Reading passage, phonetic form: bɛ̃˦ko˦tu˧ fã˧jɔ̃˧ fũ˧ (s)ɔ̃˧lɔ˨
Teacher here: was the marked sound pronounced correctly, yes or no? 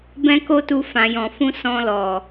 yes